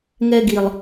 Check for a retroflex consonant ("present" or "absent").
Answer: absent